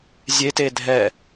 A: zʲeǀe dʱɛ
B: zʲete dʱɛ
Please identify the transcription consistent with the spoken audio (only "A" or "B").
B